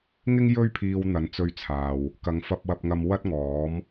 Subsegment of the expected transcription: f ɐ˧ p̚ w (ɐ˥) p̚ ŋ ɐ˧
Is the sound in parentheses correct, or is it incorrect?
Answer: incorrect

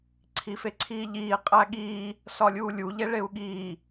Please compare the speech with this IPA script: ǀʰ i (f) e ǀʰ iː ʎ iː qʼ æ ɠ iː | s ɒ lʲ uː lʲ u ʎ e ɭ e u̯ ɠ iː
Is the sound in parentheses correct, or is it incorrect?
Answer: correct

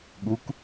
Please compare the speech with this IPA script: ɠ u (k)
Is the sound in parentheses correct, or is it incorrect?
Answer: correct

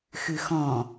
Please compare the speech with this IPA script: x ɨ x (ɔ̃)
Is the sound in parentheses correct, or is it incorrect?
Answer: correct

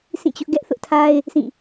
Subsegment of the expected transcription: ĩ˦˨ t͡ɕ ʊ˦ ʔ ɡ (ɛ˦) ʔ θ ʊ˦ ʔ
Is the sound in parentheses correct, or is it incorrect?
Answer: correct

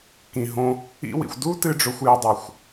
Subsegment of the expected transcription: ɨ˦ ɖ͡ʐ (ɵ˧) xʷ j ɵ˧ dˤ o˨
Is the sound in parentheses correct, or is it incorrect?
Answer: correct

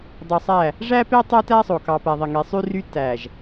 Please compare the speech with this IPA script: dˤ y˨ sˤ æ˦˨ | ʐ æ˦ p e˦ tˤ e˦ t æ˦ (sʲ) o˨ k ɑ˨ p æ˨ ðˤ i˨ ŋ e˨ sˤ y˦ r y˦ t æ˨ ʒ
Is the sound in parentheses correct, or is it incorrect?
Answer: incorrect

